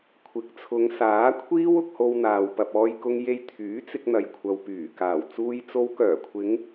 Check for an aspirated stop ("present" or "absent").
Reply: present